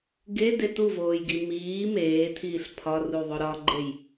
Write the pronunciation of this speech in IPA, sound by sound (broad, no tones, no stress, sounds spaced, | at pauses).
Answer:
ɡ e d e t u v oː j ɡ i m iː m eː tʰ iː ɬ pʰ ɒ r u ðˤ o ɾ ɒ ɡ͡ǃ e j